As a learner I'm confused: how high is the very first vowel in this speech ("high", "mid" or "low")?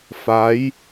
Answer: low